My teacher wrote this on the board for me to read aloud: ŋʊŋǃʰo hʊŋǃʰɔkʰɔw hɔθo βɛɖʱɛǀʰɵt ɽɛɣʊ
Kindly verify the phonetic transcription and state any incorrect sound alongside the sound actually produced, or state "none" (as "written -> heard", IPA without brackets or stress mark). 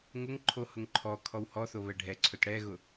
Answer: none